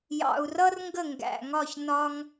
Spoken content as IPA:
jɑ̰˨˩u̯rʌ˥r ŋɡə˥˩ŋɡæ̰˨˩ŋɒ˥˩ç nɒ˥ŋ

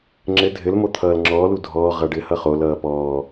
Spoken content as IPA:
ŋ͡ǁɘ dʱɘlmo t̪ʰʌːlŋ͡ǁɔːlu dʱɔːʁʌ ɖɘhʌχolʌː pɔː

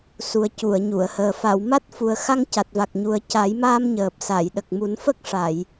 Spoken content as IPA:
su˨˩ə̯cu˨˩˨ə̯ɲu˨˩˨ə̯həː˨˩ fa˨˩˨w ma˦˥t̚fu˨˩ə̯ xa˧ŋca˨˩t̚va˨˩k̚ɲu˨˩ə̯ ca˨˩˦jmaː˧m ɲəː˨˩p̚sa˨˩˨jɗə˨˩k̚ mu˨˩˦nfə˦˥k̚ʂa˨˩˨j

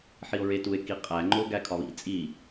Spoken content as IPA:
ħio̯ɹetue̯ kiqʼæŋ͡ǃo ɡækʰɒβḭ t͡sʼi

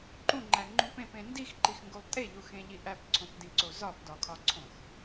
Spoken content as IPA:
ǃũŋ͡ǃæŋ͡ǃũp ẽpẽ ndixǃixŋɡulˠ tʼeʎuxẽʎiʔ æpǀʰõpdĩǀo zɒpdɒkʰɒǀʰõx

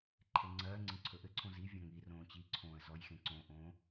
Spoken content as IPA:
ǃʰeŋ͡ǀɜːŋ͡ǀĩ ǀʰɵʔɘǀʰõ zi vʲɔ̃ŋirõː t͡ɕiǀʰõːə̯ zɔjxẽ ǀõʔõː

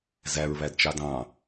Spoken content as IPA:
zæɹβædt͡ʃɑd ɑ̃

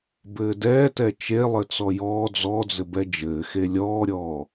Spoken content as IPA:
bɘːdɛːtɛ t͡ʃe lˠɘt͡sɔjɔː d͡zɔd͡zɘ bɛd͡ʒɘːxe lʲɔːɾʲɔː

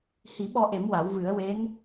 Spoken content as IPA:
hi˨˩˦ ɓɔ˧ʔe˨˩˦m wa˨˩˦wvɨ˨˩˦ə̯ we˧˥n

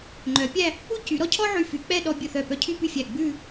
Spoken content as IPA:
ŋ͡ǃœ˩˧pʲæ˥˧ | u˥˧cy˩˧ɾɔ˥cʰɔ˥ ʕy˧˩fy˩˧k͡pɛ˥˧ ɗɔ˧bʲɵ˧˩θœ˧˩pœ˧ cʰy˥˧py˥˧fʲæ˧˩ ɡ͡bʉ˥˧

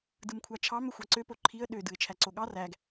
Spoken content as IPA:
dɯmkʷʰɑt͡ʃʰɑm øxʷɑǀø poǃʰiə̯ ɗø dɯɪ̯t͡ʃʰæǀoɠɑ ræɡ

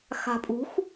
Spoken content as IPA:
xa̤pʼṳx

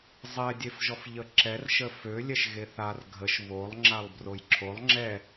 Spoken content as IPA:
zˤɛdʲefʒɔf ʎəǁɛr ʃəfølʲɛʃ ɣeθar ɡʱəʃ βolˠ ŋ͡ǁalˠbrojǁʰolˠ ŋ͡ǁɛ

